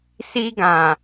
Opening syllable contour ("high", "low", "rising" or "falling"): high